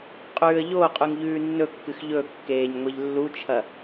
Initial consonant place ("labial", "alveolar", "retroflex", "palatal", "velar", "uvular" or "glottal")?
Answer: uvular